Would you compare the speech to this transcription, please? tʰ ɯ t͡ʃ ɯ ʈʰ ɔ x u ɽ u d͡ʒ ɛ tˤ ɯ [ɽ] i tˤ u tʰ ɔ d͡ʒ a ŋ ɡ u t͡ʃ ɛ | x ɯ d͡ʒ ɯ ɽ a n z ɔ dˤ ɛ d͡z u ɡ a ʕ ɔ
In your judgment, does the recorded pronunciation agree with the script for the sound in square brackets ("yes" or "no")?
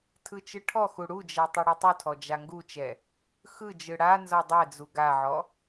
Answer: yes